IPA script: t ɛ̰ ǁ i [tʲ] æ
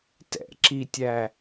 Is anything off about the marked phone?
no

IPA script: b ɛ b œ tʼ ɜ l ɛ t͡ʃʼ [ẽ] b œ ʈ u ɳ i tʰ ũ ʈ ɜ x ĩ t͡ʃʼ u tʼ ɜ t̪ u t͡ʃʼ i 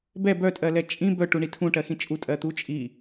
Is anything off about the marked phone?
yes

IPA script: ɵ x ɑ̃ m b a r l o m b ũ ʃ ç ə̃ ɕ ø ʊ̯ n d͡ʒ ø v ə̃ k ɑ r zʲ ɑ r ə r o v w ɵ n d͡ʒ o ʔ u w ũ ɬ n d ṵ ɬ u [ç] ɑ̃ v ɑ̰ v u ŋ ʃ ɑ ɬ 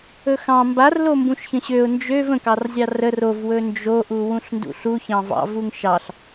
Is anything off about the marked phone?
no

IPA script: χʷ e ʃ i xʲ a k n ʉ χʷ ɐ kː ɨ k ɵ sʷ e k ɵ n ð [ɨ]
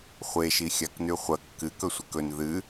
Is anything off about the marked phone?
no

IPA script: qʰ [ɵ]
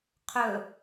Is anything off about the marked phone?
no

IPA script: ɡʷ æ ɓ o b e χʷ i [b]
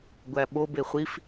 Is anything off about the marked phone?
yes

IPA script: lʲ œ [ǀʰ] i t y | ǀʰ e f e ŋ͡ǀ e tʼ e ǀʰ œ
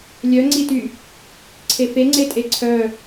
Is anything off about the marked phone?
yes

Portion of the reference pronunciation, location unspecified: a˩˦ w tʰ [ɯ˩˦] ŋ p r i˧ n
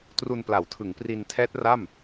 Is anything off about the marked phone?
no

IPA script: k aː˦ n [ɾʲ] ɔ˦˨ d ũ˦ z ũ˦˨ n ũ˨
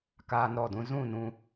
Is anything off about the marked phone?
yes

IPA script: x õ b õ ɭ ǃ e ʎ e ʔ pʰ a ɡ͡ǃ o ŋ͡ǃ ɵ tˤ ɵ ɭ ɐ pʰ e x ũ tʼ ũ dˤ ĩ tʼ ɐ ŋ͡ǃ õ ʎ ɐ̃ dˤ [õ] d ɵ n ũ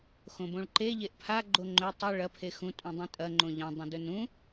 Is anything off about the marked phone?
yes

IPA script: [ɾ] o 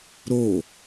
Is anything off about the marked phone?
no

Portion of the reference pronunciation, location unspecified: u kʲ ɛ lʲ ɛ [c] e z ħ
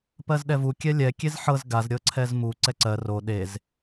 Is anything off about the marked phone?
yes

